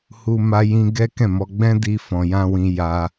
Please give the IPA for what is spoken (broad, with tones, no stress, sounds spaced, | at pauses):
h u˧ m a˦ j ĩ˦ ɡ ɛ˦ k ɛ̃˦˨ m ɔ˧ ɡ͡b ɛ̃˦ d i˧ f ɔ̃˨ j ã˧ w ĩ˧ j a˧